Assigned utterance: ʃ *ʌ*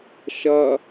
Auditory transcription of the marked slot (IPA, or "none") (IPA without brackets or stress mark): ʌ